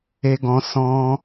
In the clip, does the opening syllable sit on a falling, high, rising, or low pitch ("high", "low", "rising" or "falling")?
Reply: high